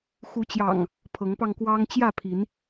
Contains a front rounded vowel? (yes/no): no